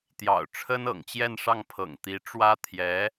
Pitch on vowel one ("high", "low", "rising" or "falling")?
low